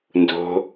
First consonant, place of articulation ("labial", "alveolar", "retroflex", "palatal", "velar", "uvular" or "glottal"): alveolar